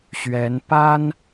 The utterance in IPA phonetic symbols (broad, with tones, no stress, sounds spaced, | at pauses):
ɕ ɥ ɛ˧˥ n p a˥ n